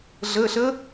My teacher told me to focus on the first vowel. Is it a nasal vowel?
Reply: no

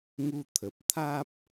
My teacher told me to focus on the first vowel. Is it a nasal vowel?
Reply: no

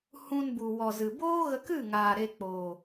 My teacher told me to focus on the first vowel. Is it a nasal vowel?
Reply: yes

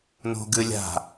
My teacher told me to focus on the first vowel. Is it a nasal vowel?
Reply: no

